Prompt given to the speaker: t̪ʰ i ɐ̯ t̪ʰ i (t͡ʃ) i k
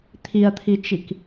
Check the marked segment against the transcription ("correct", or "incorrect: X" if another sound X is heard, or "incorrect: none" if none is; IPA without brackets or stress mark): correct